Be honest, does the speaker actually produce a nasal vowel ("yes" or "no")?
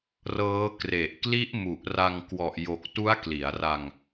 no